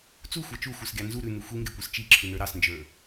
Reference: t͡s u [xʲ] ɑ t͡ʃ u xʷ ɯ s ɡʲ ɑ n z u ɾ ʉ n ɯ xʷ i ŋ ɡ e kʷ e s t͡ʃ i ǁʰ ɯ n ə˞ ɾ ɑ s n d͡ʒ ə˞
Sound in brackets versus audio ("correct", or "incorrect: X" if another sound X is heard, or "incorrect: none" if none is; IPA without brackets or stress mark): incorrect: xʷ